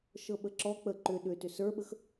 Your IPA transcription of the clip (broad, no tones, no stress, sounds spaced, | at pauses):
ʃ ɤ ɓ ə ǁ ɔ k͡p ə ǃ ʏ ɗ ʏ t ʏ s ə˞ ɓ ə x